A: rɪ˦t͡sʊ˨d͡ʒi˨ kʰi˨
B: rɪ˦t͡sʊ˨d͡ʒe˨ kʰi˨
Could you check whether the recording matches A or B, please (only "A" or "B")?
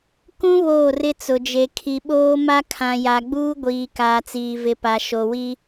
B